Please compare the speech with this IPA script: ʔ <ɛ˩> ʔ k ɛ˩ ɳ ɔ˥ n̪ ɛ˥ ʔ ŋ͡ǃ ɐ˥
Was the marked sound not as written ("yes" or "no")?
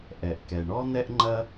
no